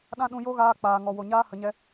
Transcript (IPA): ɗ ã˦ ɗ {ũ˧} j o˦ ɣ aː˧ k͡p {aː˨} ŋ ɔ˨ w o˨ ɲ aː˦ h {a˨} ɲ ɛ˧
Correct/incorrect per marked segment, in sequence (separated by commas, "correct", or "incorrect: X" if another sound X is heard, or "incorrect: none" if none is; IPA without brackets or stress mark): correct, correct, incorrect: ə˨